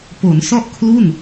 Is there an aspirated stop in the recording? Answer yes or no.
yes